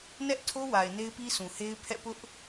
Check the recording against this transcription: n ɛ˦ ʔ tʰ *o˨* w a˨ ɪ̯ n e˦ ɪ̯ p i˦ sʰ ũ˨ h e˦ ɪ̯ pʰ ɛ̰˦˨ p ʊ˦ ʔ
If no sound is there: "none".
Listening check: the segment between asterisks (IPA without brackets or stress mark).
o˦